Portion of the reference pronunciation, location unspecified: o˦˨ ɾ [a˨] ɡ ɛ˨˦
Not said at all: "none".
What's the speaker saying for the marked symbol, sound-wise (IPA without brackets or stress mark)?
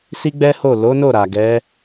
a˨